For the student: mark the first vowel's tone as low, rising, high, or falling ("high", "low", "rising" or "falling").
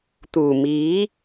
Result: low